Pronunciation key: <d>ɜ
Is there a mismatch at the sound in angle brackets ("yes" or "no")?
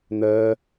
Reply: yes